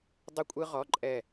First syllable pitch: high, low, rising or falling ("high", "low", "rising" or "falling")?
high